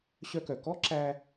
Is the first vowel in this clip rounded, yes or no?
yes